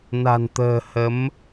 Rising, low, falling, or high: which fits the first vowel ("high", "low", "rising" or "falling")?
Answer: low